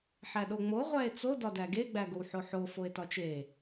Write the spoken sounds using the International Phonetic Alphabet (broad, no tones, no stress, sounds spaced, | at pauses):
ħ æ ɗ o ŋ͡m o ʁʷ æ e̯ t͡s o d ɒ d æ ɡ e ɡ͡b æ ɡ o w ħ o ħ o f o e̯ t ɒ t͡ʃ e